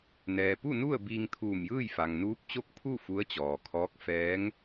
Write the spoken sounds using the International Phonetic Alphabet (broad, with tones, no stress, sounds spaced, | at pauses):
n ɛː˩ p u˥˨ n u˥˨ ə̯ b iː˧ ŋ t̪ʰ uː˧˩ m j ɯː˥˨ j f a˩ ŋ n uː˧˥ p̚ t͡ɕ o˥˨ k̚ pʰ u˥˨ f u˧˥ ə̯ t͡ɕ ɔː˩ kʰ ɔː˧˥ k̚ f ɛː˧˥ ŋ